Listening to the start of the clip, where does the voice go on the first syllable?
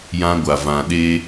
high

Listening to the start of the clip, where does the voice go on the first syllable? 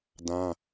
high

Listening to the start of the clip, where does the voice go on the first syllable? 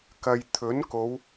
low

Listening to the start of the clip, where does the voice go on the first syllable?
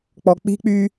low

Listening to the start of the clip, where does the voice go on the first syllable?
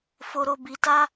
low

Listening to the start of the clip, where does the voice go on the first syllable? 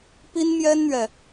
high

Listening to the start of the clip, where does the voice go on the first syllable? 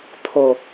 low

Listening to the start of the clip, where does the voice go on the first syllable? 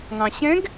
low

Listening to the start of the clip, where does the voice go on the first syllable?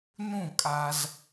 falling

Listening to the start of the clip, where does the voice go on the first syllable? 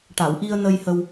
low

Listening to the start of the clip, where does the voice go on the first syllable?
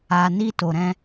low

